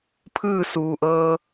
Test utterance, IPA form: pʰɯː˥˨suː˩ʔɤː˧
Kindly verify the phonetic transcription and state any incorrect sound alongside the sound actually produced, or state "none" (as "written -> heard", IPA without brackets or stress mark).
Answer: none